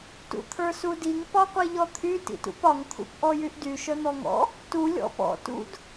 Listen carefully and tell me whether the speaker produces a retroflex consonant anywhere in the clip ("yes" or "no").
no